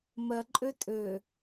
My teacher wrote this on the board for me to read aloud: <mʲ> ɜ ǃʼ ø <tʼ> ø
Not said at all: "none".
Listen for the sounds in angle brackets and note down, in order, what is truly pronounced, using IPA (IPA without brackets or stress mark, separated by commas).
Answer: m, tʼ